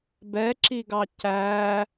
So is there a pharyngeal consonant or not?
no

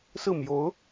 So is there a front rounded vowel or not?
no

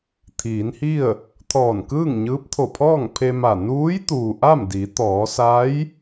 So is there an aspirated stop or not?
yes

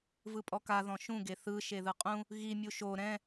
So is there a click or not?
no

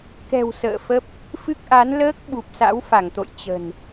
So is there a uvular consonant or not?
no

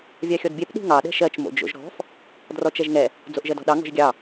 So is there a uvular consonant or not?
no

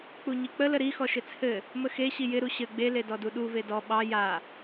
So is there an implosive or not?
yes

